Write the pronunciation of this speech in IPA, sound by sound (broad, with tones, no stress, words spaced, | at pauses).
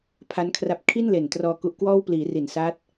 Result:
pʰa˦˥nkʰra˦˥p̚ kʰi˥˩nle˨˩n trɔː˧ku˦˥ʔkwɔː˥˩w pliː˩˦ri˨˩nsa˦˥t̚